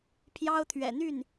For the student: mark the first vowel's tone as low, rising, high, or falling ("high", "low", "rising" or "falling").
high